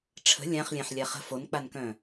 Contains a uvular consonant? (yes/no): yes